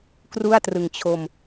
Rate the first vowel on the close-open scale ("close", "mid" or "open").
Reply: close